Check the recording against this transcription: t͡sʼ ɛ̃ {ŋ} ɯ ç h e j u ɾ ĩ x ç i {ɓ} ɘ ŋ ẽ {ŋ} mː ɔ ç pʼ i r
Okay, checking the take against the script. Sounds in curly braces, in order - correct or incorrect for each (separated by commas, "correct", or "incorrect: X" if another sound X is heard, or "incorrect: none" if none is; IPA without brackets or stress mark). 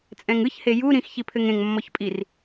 correct, incorrect: pʰ, correct